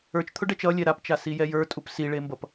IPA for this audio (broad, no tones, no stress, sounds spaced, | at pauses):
ə˞ t͡ʃ t̪ʰ ʊ ɖ ɛ t͡ʃ ʌ lʲ ɛ ɾ a p t͡ʃ a s i j ɛ j ə˞ tʼ u p s i ɭ e m b ʌ p